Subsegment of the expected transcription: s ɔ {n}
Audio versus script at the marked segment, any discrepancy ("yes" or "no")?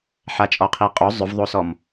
yes